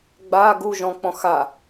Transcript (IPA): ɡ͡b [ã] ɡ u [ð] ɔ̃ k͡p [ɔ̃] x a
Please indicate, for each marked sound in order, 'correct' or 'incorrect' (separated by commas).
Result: incorrect, incorrect, correct